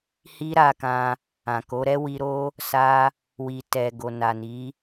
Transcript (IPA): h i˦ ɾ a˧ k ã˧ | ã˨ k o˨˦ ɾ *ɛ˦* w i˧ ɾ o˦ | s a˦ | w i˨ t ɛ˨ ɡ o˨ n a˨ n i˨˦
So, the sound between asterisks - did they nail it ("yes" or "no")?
yes